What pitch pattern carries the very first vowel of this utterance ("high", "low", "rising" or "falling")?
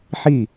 falling